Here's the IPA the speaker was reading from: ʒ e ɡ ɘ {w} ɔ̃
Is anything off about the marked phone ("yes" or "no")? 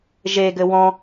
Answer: no